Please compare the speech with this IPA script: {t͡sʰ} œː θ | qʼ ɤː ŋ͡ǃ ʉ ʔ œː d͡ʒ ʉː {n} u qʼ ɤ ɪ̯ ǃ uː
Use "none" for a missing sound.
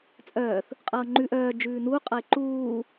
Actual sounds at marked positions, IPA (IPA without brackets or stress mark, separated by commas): t͡sʼ, n